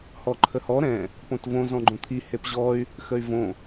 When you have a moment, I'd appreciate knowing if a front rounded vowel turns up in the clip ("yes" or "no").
yes